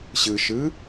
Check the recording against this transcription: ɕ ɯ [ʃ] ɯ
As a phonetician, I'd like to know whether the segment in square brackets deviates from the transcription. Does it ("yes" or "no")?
no